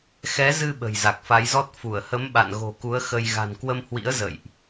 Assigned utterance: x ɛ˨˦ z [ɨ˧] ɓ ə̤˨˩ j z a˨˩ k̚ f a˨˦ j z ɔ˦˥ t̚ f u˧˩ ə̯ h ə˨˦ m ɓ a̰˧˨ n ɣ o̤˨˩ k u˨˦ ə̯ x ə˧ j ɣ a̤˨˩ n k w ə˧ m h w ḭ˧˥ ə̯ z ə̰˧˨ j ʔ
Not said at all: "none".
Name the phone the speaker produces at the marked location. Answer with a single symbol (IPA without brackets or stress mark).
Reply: ɨ˧